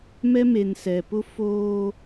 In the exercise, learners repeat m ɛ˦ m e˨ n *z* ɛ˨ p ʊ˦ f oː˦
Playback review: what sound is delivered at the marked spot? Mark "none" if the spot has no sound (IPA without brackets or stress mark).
s